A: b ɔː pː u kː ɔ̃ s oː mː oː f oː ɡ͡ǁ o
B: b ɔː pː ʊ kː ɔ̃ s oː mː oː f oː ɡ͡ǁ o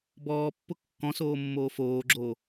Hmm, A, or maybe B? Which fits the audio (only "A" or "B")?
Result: B